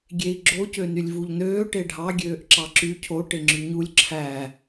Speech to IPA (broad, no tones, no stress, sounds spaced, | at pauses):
ɡʲ e i̯ ɡ͡ǁ o c ø n y lʲ v u ʎ n øː ʈ e ɖʱ ɑ ɡʲ øː ʔ ǁ ɑ ǁ y cʰ o ʈ e ŋ͡ǁ y ɲ u lʲ ǁʰ æ